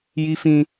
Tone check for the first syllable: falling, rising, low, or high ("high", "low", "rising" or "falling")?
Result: high